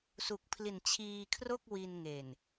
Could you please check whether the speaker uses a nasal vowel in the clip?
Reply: no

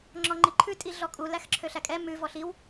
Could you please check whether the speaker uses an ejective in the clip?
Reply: yes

